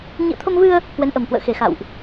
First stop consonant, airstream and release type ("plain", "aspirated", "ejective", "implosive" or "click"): aspirated